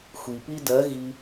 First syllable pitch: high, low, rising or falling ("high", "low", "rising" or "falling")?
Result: low